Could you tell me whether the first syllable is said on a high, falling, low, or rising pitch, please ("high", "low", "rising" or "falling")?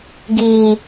low